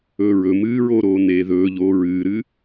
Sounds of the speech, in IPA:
ɵː ɹ ɵ m ɨː ɹ oː ɾ oː n eː ð ɵː ʎ oː ɹ ɨː ɾ ɨ

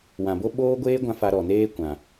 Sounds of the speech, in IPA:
w ã˨ b o˦ ɓ oː˦ ɡʷ eː˦ ɡʷ ã˧ f a˧ ɾ ɔ˨ n eː˦ kʷ ã˨

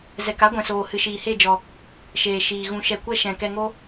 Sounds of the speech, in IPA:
z ɛ˨ k a˦ ɡʷ ɛ̃˨ s oː˨ h ɨ˨ ʃ iː˨ h e˦˨ d͡ʒ ɔ˨ | ʃ eː˨ ʃ iː˨ ɣ ũ˨ ʃ ɛ˨ kʷ ɛ˧ ʃ ɛ̃˨ k ɛ˧ ŋ o˦

